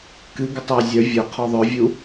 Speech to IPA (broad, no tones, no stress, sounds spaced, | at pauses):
k ɨ ɡ ʏ tˤ æ zʲ œ vʲ œ qʰ ɔ ðˤ œ vʲ u